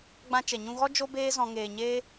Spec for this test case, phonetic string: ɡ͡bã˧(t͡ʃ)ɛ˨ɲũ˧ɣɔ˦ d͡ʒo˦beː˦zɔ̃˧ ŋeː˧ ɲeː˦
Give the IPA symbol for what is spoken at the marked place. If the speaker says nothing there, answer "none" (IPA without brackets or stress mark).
t͡ʃ